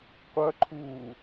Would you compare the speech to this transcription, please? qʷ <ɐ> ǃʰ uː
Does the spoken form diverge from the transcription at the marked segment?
no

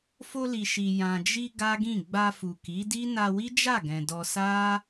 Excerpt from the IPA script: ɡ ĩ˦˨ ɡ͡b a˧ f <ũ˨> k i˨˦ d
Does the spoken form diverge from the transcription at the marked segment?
yes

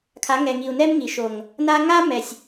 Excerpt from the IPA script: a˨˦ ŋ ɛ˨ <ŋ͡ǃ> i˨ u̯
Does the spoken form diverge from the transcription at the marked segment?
yes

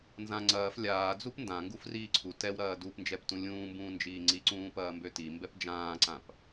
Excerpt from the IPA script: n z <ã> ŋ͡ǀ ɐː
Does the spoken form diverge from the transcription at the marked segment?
no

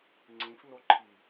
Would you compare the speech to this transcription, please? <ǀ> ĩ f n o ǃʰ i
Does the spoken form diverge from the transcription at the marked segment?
yes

